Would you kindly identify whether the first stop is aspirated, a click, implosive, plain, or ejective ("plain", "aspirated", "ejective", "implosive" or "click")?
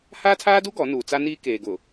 aspirated